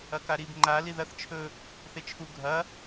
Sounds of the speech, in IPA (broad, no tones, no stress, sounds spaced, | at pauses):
ɐ k a ɾ i b ŋ͡ǃ a l i ð ɐ θ t͡ʃʰ ɵ | θ e t͡ʃʰ u ɡʱ ɐ